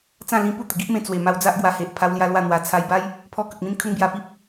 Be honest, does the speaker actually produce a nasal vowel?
yes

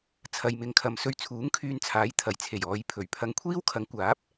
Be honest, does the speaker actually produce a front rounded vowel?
yes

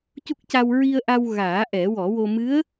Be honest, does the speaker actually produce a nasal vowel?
no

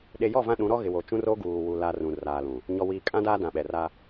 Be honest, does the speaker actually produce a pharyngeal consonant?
no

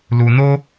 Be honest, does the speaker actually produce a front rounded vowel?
no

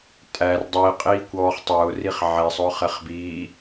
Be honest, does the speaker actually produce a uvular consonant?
yes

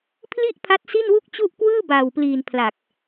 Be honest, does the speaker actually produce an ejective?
no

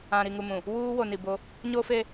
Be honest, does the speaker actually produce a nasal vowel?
yes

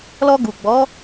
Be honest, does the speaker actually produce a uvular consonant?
no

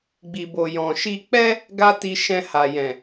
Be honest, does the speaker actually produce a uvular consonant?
no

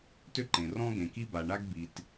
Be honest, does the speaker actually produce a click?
yes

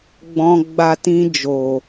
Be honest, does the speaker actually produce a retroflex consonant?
no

